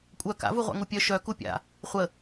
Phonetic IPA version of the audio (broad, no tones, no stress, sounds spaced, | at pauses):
kʷʼ œ k a̰ v u ʁʷ a̰ ŋ u pʲ œ ʃ œ k u pʲ a̰ | χʷ ə